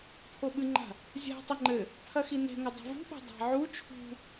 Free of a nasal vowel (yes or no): yes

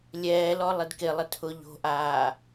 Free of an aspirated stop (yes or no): no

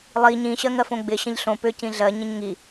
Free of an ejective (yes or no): yes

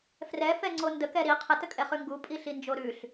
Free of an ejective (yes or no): no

